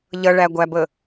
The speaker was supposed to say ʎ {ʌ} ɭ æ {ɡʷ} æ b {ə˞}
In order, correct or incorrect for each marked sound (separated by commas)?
correct, correct, incorrect